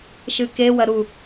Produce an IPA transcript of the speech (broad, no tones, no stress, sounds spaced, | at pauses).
ʃ ɨ k e w ɐ ɾ u